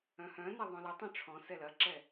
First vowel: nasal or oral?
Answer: nasal